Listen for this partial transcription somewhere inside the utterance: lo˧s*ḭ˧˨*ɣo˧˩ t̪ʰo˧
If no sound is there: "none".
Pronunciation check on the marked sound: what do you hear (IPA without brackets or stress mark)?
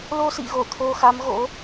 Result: ḭ˧˨